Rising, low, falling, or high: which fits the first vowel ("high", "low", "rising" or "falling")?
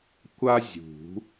high